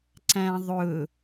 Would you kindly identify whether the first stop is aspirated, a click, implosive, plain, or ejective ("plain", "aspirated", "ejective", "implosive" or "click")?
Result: click